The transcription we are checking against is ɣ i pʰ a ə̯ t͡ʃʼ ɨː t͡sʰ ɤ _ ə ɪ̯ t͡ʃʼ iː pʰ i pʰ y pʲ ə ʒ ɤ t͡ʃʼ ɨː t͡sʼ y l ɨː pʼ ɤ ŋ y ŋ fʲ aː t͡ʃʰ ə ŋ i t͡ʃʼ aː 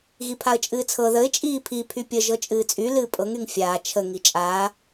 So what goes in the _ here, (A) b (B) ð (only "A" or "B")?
B